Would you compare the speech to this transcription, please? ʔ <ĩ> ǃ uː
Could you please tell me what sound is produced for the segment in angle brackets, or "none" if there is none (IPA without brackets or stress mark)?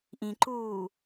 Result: ĩ